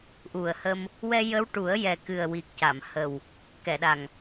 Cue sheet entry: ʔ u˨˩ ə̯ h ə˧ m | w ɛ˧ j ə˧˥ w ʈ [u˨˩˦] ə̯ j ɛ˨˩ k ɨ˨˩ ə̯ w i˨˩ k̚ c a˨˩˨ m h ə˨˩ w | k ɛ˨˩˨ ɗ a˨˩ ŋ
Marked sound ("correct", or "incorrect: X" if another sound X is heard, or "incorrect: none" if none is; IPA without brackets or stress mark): correct